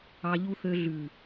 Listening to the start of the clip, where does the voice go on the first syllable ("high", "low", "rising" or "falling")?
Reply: low